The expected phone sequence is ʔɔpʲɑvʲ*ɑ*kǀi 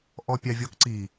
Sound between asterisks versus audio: incorrect: ɔ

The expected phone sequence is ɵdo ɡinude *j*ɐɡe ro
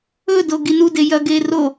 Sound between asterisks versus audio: correct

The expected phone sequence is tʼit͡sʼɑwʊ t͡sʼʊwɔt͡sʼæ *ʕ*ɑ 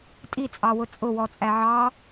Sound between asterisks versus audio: correct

